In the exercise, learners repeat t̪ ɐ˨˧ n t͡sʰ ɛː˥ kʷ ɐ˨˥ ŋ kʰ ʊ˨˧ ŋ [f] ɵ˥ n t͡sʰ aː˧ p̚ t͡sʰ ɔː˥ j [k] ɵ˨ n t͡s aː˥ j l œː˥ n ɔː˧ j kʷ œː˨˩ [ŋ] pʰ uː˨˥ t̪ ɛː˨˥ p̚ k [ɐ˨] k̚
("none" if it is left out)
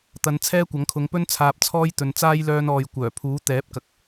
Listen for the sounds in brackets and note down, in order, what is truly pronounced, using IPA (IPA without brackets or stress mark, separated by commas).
p, t̪, none, ɐ˨